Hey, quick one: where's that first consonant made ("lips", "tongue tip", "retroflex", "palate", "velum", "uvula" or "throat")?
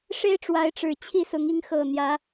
retroflex